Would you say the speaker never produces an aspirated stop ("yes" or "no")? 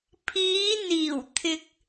no